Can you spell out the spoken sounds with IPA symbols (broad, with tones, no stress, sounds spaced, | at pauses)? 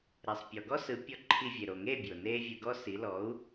ɾ ɛ˩ sˤ pʲ ɔ˩ ɡ ɔ˥ s ɯ˩˥ pʲ ɔ˧ ǃʰ i˧ vʲ e˩ ɾ o˩ ŋ e˥˩ bʲ o˩ n eː˥ vʲ ɯ˧ ɡ ɔ˥ s i˩˥ l ɔ˩˥ u̯